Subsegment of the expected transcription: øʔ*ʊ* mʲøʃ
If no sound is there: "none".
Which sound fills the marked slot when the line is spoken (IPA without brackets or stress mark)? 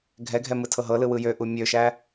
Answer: u